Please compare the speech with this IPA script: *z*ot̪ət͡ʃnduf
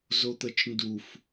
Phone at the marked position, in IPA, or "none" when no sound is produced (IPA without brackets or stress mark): z